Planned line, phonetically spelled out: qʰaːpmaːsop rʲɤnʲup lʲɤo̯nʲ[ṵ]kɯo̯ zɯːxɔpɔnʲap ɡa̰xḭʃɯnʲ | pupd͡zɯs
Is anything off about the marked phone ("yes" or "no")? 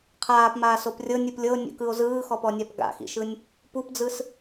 no